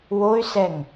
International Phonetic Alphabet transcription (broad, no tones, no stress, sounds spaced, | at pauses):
w o y̯ s ɛ ŋ